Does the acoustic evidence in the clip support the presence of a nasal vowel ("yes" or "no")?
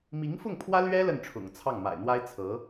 no